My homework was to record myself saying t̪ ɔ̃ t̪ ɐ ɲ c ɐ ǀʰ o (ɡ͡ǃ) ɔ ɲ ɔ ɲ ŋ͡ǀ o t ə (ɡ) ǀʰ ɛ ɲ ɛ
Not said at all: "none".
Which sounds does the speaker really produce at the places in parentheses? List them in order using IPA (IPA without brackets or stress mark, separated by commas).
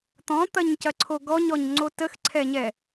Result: ɡ, x